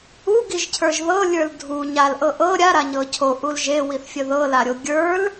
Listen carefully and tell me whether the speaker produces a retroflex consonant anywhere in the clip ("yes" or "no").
no